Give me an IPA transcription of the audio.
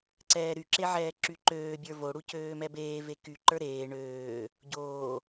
ǀ ɛː ɾ y ǁ e ʕ ɛː ǁ y ǃ øː bʲ ə˞ v o ɽ u c øː m ɛ b eː v e k y ǃ ə˞ ɾ eː ɳ øː | ɟ oː

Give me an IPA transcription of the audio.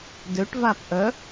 d ø ʈ v a p ʔ œ

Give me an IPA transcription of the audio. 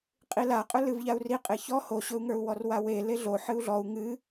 qʼ i l a qʼ ɵ l ɨ v ʎ a u̯ r i qʼ e ç ɔ h o ɕ ɵ u̯ ŋ ə˞ u̯ w ɔ r w a w e l e ɮ o ħ ɨ u̯ ɮ ɔ u̯ ŋ ɨ

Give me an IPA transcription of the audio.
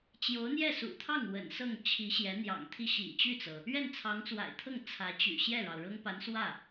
t͡ɕ j o˧˥ ʊ̯ n̪ j ɛ˥˩ s ṵ˨˩ t̪ʰ ɑ˥˩ ŋ w ə̰˨˩ n s ɤ˥˩ ŋ t͡ɕʰ i˧˥ ɕ j ɛ˧˥ n̪ j ɑ̰˨˩ ŋ t̪ʰ i˥˩ ɕ ḭ˨˩ t͡ɕ y˥˩ t͡s ɤ˩ | ɥ ɛ˥˩ n t͡sʰ ɑ˧˥ ŋ t͡s w a̰˨˩ ɪ̯ t̪ʰ ɤ˥˩ ŋ t͡sʰ ä˧˥ t͡ɕ y̰˨˩ ɕ j ɛ˥˩ ɻ ɑ˩ ʊ̯ ɻ ɤ˥ ŋ p a˧˥ n s w ä˥˩

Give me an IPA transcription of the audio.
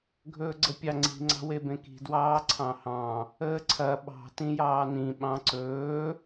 ɡʱ ɵː ɡ͡ǀ ə pʲ ɑ ŋ͡ǀ i̤ ŋ͡ǀ ɑ̤ w e b ẽ k i̤ d w ɑː ǀʰ ɑ̃ h ɑ̃ | əː ǀʰ ɐ ɓ ɑ̤ t ĩ j ɑː n ĩ ɓ ɑ̃ ǀ ɵː

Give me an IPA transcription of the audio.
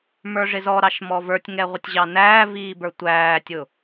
m ə˞ ʐ ɪ z ɔ ɾ ɑ ʃ m ɔ v ə˞ tʲ ŋ ɛ ʁʷ ɪ tʲ ʑ ɑ n æː v iː b ə˞ tʷ æː tʲ ʊ

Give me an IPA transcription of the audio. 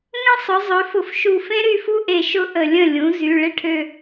ŋ ə̃˦˥ sˤ ʊ˩˥ zˤ ø˩˥ f ʊ˧˩ f ʃ u˧˩ f ẽ˦˥ ɾ y˥˩ f u˦˥ ʔ e˧˩ ʃ ʊ˦˥ ʔ ə˧˩ lʲ ə̃˥˩ lʲ ũ˩˥ z y˩˧˩ ɭ ɪ˥˩ ʈʰ ø˧˩

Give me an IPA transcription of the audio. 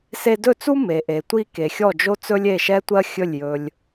s e˧ d ɵ˥˩ t͡s u˥ m e˩ ʔ e˩ tʷ i˧ k e˩ xʲ ɔ˥˩ d͡ʒ o˥ t͡s ɵ˥ lʲ e˥˩ ʃ ɛ˥ tʷ ɜ˥ xʲ ɵ˥˩ lʲ j ɵ˧ lʲ

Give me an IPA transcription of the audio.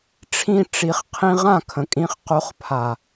ʈ͡ʂʰ ĩ˧ ʈ͡ʂ i˨ χ qʰ ĩ˧ ʁ ã˦˨ kʰ ə̃˨ kʼ ĩ˧ χ q o˨˦ χ pʰ a˨

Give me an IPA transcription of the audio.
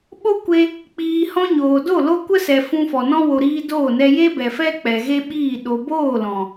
ɓ o˦ kʷ e˧ | k͡p iː˨ h ɔ̃˧ ɲ oː˨ d o˦˨ l o˦ kʷ ə˦ s ɛ˨ f ũ˧ f ɔ˨ n ɔ̃˦ w o˨ ɾ iː˧ d oː˦˨ n ɛ˧ j e˦ b ɛ˨ f ɛ˦ k͡p ɛ˨ ɣ e˦ ɓ iː˦˨ ɗ o˨ b oː˦˨ l ɔ̃˨

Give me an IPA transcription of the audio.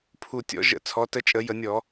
pʰ u˨˩ tʲ ɔ̰˩˧ ʒ ə̰˧˩˧ t͡sʰ ɔ˩˧ t ə˧ t͡ʃʼ ə˧˩˧ j ə˧˩˧ nʲ ɔ˧˩˧

